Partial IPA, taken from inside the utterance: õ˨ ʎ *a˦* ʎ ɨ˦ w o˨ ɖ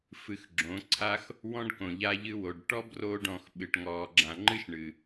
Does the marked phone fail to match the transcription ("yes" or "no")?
no